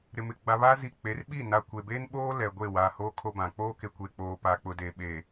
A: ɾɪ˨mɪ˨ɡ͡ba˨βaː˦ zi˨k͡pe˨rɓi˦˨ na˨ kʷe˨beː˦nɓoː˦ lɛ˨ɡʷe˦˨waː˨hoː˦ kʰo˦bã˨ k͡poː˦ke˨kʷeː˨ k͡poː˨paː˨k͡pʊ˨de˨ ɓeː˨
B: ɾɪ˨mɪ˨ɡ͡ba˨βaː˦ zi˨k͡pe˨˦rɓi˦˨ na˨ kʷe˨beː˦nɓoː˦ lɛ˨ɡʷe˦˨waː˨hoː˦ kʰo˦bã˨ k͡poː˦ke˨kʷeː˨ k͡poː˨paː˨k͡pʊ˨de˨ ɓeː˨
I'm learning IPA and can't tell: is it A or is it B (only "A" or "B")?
B